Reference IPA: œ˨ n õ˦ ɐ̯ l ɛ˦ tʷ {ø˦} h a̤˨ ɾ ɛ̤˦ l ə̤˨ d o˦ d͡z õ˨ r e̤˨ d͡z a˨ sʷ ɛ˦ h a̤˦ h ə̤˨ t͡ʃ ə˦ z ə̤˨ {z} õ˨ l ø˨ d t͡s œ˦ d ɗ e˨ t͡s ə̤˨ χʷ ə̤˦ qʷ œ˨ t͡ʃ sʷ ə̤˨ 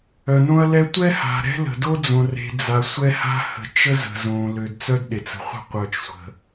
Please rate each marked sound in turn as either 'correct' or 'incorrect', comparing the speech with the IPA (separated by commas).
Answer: incorrect, correct